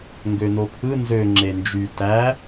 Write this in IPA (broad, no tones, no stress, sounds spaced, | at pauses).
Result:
ŋ ɡ ø n o pʰ ɯ n z ø ŋ͡ǁ e n d͡ʒ y t æ